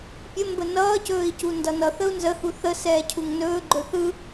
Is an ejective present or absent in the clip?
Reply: absent